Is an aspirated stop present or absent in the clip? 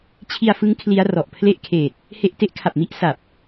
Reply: present